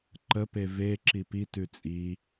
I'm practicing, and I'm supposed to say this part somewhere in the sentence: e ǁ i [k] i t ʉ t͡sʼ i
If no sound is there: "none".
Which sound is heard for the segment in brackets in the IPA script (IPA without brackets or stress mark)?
p